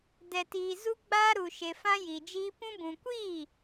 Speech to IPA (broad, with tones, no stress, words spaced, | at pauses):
dɛ˨tiː˨ zu˧ ɡ͡baː˦ ɾu˨ʃe˨ fã˦ji˨d͡ʒiː˦ pũ˧bũ˨kʷiː˦˨